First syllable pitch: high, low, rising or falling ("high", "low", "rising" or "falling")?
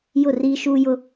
falling